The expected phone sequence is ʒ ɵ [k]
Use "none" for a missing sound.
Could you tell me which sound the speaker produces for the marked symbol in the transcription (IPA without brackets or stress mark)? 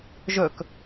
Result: k